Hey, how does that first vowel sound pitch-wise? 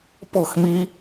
falling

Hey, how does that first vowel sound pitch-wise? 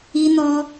high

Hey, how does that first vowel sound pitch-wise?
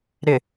low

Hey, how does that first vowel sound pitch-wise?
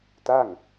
falling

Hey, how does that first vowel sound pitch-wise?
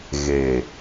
low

